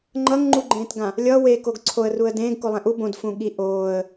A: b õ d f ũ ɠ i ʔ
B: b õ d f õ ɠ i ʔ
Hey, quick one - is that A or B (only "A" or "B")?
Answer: A